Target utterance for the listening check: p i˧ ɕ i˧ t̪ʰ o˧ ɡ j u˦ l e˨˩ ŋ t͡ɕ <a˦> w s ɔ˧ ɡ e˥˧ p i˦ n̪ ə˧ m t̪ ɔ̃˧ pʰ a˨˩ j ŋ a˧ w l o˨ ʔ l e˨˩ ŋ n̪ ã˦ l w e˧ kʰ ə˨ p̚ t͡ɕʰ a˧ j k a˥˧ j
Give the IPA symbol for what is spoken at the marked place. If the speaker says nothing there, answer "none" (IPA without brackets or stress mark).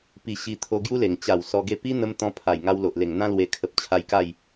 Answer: a˨˩